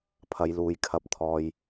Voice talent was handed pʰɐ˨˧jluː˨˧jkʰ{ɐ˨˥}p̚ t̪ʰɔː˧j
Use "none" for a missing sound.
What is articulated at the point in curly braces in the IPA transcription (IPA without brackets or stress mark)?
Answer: ɐ˧